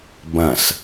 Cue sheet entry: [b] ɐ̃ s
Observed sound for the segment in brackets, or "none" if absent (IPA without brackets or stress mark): b